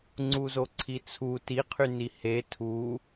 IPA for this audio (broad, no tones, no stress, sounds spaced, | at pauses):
ŋ͡ǀ u z o ǀʰ i t͡sʰ u t i qʰ y n i h e tʰ u